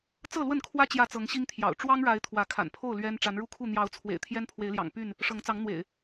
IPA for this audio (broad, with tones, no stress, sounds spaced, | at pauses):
t͡s ɤ˥˨ l w ə˥˨ n kʰ w ä˦ t͡ɕ j ä˥˨ t͡s ɤ˨˦ ŋ ɕ i˦ ŋ t̪ʰ j ɑ̰˨˩ ʊ̯ ʈ͡ʂ w ɑ˦ ŋ ɻ a˨˦ ɪ̯ t̪ʰ w ä˨˦ kʰ a̰˨˩ n pʰ o˥˨ ʊ̯ l ɥ ɛ˦ n ʈ͡ʂ a˨˦ n ɻ u˦ kʰ u˥˨ n̪ j ɑ˨˦ ʊ̯ t͡sʰ w ḛ˨˩ ɪ̯ t̪ʰ j ɛ˦ n pʰ w e˨˦ ɪ̯ l j ɑ̰˨˩ ŋ p y˥˨ n | ʂ ɤ˨˦ ŋ t͡s ɑ˨˦ ŋ n̪ w ḛ˨˩ ɪ̯